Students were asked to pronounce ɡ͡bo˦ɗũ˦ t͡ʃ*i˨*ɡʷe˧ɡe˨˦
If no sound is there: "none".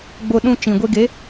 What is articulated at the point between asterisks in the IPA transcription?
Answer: ĩ˨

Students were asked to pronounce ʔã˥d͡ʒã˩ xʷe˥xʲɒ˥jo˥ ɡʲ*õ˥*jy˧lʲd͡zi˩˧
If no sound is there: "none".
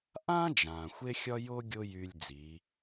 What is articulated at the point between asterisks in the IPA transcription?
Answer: o˥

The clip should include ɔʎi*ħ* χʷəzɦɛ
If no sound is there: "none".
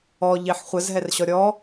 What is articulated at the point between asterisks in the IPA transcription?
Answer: ħ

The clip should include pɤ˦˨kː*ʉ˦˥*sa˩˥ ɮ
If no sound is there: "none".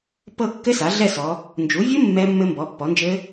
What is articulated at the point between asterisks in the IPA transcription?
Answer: ɘ˦˥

